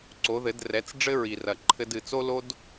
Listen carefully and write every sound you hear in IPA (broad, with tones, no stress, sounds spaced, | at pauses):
ǀ o˨˦ ð ɘ˨˦ d r ɛ˨˦ t͡s ɖ͡ʐ ɘ˦ ɹ i˨ r ɐ˨ ǃʰ ɘ˦ d ɨ˨ t͡s o˦ l o˦ d